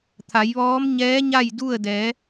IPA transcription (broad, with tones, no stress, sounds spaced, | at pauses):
t̪ʰ a˩˧ j ʋ ɔː˧˥ m ɲ ɛː˧˥ ɲ a˥˨ j d u˥˨ ə̯ d ɛː˩˧